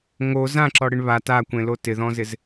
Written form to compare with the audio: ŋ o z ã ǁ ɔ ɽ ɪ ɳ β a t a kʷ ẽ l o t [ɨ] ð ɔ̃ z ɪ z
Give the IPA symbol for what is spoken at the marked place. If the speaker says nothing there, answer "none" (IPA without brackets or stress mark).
ɪ